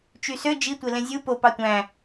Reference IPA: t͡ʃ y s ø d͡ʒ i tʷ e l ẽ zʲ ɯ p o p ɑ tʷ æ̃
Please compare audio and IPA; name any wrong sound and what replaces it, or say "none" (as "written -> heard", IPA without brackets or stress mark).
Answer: none